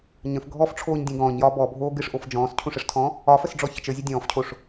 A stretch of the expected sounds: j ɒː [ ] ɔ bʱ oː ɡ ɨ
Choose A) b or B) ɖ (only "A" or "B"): A